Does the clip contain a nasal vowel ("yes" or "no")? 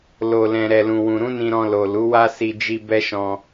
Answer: yes